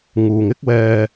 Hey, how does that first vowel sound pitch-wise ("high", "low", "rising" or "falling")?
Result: low